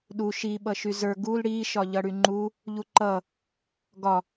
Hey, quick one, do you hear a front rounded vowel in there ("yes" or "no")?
yes